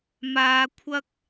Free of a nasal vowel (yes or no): yes